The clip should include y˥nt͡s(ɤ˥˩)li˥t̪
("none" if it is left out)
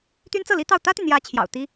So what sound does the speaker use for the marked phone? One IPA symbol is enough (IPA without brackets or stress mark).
ɤ˥˩